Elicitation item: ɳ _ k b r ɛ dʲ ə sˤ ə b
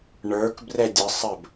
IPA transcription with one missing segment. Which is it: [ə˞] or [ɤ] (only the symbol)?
ə˞